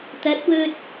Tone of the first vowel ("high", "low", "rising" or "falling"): rising